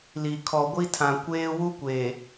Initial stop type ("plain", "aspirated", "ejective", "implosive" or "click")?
aspirated